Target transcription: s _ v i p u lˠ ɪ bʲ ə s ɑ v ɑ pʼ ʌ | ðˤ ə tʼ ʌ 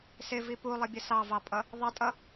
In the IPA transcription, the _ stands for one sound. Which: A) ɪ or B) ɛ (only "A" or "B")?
A